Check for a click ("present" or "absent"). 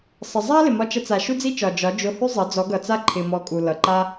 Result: present